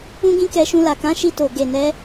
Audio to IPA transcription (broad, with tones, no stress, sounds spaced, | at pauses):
ũ˦ ɡ ĩ˦ k ɛ˧ ʃ ũ˧ l a˨ k ã˨˦ ʃ i˧ t o˨ ɡ e˨ n ɛ˨˦